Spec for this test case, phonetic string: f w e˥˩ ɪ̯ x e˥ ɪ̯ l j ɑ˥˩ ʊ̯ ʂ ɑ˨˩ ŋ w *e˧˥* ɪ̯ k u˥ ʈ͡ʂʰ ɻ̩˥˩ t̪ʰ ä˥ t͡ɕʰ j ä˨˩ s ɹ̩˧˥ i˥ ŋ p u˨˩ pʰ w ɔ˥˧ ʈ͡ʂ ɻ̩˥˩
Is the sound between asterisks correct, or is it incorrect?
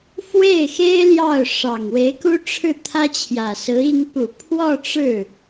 correct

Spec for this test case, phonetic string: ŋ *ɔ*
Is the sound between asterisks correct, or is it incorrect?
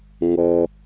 correct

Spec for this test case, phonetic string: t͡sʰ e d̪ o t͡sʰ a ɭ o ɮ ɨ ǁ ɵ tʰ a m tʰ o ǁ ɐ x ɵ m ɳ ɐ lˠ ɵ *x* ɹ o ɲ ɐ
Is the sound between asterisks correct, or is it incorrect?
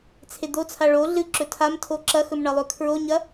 incorrect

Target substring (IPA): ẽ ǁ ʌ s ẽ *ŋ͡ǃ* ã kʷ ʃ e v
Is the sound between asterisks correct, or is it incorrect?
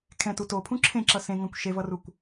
incorrect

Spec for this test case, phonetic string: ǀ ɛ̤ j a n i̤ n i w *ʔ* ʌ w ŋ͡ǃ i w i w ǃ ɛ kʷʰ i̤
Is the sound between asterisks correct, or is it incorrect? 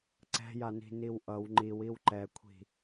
correct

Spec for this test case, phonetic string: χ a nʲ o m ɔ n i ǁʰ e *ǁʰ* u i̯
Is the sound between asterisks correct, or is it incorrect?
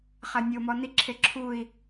correct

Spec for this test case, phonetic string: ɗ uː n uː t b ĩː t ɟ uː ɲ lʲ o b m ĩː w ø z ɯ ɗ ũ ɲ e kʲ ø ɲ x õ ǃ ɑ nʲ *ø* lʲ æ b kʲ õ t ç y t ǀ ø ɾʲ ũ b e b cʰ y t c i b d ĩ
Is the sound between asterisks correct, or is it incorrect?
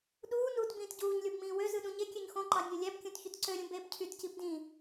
correct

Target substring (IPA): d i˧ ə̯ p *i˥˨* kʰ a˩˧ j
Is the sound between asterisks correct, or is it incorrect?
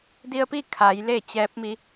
correct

